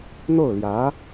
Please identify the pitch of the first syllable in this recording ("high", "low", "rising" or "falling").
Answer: falling